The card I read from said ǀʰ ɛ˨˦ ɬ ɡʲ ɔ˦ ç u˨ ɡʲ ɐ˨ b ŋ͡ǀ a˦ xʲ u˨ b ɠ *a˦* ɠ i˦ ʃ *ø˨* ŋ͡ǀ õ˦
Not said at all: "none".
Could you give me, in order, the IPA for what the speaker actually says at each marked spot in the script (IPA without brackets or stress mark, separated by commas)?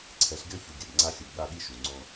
a˦, u˨